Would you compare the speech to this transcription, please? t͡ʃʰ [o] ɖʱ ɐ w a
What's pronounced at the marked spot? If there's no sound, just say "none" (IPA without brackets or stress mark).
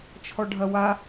ɔ